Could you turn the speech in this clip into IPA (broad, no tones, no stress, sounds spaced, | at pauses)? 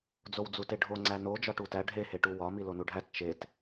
d͡z o w d͡z u t e ɖʱ o ŋ͡ǀ æ n o d͡ʒ ɒ ʈ u t æ ɖʱ e h e ʈ u w ɒ m i l o n u ɖʱ æ t t͡ʃ e t